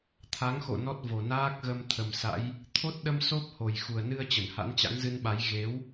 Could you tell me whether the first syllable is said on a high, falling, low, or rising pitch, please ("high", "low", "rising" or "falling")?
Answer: rising